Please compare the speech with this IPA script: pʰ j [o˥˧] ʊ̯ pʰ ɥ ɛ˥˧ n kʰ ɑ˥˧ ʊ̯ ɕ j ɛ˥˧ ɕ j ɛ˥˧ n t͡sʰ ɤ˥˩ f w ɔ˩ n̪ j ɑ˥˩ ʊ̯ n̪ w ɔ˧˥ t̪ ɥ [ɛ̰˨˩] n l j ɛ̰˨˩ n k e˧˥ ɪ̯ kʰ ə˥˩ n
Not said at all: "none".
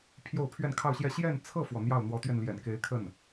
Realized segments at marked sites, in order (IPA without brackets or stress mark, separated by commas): o˥˧, ɛ˧